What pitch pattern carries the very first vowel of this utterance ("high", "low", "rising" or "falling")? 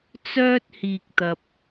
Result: high